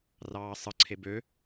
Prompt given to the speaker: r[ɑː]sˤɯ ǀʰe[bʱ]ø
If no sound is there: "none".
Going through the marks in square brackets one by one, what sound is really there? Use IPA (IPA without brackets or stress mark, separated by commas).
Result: ɑː, b